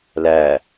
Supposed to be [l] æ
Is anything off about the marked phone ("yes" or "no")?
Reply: no